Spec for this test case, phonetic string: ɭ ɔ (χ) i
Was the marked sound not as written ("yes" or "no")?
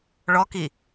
yes